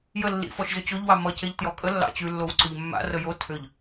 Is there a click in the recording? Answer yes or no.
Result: yes